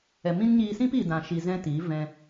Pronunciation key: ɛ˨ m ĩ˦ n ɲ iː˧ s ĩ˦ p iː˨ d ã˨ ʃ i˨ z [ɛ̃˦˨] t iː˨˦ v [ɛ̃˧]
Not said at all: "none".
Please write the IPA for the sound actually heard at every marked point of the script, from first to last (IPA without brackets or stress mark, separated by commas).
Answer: ɛ̃˦, ɛ̃˧